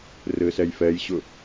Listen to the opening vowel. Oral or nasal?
oral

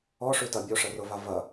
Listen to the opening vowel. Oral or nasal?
oral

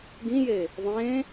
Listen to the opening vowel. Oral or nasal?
nasal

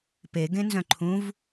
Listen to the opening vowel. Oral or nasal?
oral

